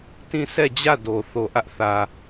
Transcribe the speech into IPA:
tĩ˦˨ sʰɛ˦˨d͡ʑä˦˨ do˨ θo˨ʔä˦ʔ θä˨

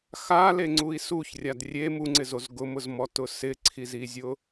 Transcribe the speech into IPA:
xaleŋ͡ǀui̯ suçrʲad rʲe muŋ͡ǀɪzoz ɡʊmʊzmɔtʊ sɪǀʰizizʲʊ

